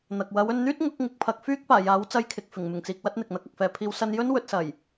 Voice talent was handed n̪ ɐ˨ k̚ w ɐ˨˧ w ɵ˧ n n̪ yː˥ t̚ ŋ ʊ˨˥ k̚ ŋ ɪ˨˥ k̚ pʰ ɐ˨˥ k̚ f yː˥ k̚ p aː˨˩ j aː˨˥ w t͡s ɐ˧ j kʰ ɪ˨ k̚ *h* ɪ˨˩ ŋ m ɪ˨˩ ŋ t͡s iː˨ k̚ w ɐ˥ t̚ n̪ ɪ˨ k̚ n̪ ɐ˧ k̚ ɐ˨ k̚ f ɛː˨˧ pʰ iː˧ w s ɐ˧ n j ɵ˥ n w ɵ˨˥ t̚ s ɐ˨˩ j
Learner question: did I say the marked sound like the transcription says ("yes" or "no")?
no